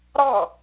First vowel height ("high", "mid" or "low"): low